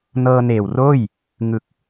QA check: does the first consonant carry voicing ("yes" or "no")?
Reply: yes